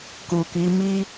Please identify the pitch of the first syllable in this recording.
low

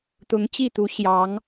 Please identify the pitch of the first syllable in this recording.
rising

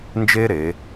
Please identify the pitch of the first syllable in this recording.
high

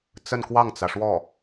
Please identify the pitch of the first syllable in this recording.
falling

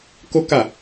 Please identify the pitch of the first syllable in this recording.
high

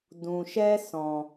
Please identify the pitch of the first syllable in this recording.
low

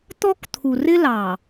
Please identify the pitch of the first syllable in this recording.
high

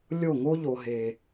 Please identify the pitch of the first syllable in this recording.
falling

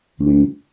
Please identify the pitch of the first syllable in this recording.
low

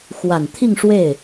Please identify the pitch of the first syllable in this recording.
low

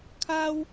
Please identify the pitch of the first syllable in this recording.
high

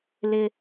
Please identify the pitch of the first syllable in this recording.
high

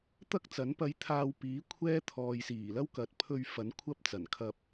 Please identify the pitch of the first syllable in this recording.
high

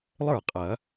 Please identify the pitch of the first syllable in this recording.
falling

